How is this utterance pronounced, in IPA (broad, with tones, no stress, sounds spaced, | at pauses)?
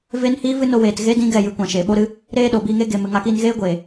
v e˦ n h iː˦ v ɨ˦ n o˧ w eː˨ t ɣ e˦ d ĩ˦ ɡ ɛ˦˨ j ɨ˧ kʷ ã˨ ʃ e˨ ɓ o˦ ɾ ɨ˦ | ɾ eː˦ ɗ o˨ b iː˧ ŋ e˦ ɡ e˨ m ɨ˨ ŋ a˧ k iː˧ n ɣ eː˦ ɡʷ eː˨